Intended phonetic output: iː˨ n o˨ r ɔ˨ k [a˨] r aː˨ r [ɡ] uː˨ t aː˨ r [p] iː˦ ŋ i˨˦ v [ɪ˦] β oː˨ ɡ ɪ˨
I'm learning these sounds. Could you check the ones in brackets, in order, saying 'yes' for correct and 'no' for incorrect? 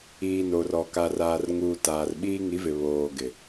yes, no, no, no

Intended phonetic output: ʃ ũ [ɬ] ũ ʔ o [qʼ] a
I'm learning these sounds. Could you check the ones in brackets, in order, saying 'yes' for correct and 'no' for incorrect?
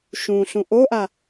yes, no

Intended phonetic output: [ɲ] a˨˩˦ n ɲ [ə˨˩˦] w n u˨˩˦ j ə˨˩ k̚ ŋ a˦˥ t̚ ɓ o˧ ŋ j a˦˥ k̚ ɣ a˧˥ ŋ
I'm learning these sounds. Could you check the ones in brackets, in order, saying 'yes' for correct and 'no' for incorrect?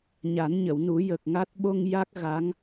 yes, no

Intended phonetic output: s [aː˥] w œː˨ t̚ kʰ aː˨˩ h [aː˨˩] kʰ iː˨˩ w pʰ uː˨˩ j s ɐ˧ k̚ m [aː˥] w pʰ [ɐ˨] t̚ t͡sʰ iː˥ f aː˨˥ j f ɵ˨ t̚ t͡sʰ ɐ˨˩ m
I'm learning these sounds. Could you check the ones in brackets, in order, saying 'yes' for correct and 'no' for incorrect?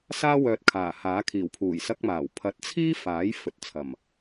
yes, no, no, no

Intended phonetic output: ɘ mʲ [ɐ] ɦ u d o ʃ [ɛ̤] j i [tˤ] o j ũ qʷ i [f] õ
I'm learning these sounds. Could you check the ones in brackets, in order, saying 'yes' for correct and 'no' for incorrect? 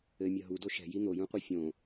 yes, yes, no, no

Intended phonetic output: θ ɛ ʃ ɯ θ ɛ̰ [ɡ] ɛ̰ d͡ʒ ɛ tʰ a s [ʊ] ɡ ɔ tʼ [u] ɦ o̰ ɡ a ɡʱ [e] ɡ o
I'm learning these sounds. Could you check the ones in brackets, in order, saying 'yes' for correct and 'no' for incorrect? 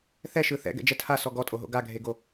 yes, no, no, yes

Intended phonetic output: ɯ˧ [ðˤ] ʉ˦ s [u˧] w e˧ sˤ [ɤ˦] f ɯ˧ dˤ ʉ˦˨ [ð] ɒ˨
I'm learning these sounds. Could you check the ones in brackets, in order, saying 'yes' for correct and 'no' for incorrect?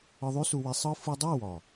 yes, yes, no, no

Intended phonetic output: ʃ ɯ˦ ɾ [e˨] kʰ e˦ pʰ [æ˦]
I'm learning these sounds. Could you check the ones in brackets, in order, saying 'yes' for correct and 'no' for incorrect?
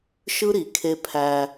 no, yes

